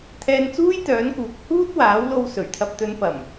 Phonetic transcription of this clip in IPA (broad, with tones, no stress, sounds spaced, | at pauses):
t̪ʰ ɛː˧ n t͡s uː˥ j t̪ œː˨˥ n k uː˨˥ k̚ h uː˥ t̚ w aː˨˥ w l o˧ w s ɵ˨˩ ɥ t̪ʰ ɐ˨ p̚ t̪ ɵ˨˧ n p ɐ˨˩ m